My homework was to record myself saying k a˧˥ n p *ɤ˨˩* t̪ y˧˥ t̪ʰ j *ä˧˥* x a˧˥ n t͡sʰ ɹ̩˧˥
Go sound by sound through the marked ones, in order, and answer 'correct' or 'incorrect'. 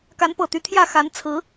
correct, incorrect

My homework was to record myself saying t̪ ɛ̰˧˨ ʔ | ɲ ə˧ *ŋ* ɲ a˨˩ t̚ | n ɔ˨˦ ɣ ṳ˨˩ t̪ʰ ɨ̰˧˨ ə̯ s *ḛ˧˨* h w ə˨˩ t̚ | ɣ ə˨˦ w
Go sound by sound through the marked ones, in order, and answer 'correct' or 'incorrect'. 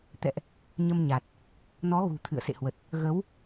incorrect, correct

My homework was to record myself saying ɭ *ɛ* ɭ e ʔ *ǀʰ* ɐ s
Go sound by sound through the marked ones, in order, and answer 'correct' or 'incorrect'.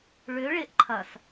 incorrect, incorrect

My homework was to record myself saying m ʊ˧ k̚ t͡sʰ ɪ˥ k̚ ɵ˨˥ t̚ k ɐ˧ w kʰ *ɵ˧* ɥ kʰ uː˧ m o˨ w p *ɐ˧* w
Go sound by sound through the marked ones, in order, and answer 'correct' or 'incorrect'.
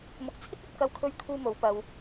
correct, correct

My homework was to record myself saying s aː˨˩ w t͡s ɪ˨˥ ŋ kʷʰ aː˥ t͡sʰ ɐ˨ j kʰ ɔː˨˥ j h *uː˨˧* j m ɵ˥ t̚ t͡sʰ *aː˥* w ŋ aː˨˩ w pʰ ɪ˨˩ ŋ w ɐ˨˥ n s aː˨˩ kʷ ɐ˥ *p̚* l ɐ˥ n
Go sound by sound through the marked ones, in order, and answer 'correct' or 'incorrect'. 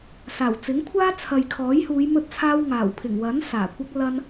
correct, correct, incorrect

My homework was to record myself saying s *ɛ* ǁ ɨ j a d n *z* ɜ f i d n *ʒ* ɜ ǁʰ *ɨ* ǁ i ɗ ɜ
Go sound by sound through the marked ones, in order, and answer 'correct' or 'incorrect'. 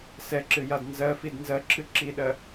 correct, correct, incorrect, correct

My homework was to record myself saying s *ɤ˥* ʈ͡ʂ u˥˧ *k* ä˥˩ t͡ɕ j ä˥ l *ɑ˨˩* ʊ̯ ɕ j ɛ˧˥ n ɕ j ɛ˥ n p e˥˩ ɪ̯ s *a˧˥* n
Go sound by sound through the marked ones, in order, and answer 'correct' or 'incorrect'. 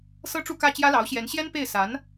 correct, correct, incorrect, correct

